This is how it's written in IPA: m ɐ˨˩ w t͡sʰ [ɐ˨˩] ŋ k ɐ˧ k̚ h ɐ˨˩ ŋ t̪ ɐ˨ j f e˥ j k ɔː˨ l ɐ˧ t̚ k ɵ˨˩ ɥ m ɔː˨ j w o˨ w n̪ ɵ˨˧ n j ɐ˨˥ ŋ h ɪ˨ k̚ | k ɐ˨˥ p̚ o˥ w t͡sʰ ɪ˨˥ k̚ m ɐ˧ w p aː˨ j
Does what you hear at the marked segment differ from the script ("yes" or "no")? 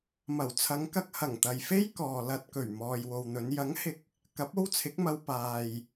yes